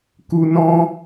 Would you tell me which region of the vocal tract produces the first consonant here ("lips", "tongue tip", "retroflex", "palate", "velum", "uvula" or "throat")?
velum